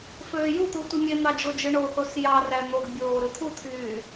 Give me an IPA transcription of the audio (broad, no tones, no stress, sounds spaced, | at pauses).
f øː j u t̪ u tʷ i mʲ e n̪ ɑ d͡ʒ o d͡ʒ ɯ ɳ o θ o s j ɑ r æ n̪ o ɡ bʲ oː ɾ ɯ t̪ʰ u t̪ʰ yː